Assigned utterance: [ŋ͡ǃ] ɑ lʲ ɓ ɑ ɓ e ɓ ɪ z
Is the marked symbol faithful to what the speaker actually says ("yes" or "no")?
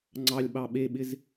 no